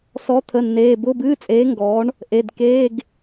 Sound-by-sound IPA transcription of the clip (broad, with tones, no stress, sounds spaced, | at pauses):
s ɔ˨˥ t̪ʰ ə˩˧˩ nː eː˩˧˩ b ʊː˧˥˧ b ɨː˧˥˧ t͡sʼ eː˨˥ ŋ ɡ ɔː˨˥ ɳ | ʔ e˩˧˩ d k eː˧˥˧ ɡ